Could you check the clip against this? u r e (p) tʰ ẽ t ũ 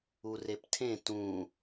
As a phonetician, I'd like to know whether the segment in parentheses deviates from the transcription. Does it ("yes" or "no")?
no